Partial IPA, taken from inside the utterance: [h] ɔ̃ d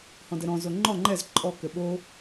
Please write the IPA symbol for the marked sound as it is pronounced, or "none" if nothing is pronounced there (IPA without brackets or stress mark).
h